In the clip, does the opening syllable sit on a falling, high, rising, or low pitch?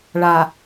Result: low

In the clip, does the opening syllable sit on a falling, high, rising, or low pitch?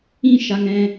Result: high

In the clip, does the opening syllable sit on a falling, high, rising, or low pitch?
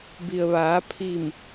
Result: low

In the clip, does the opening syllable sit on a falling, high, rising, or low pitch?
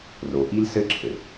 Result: low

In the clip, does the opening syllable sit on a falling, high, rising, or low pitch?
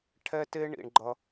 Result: high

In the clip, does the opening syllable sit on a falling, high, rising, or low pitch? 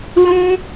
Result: high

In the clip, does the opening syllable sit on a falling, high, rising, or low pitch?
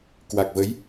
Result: low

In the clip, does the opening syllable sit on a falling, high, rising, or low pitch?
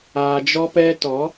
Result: low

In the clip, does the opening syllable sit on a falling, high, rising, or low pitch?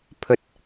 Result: low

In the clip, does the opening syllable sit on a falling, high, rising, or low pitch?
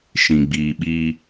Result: low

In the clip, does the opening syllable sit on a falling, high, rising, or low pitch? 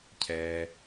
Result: low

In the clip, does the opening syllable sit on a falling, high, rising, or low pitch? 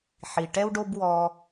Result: low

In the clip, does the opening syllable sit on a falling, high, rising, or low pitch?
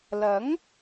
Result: rising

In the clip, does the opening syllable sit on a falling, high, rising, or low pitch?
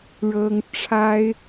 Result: high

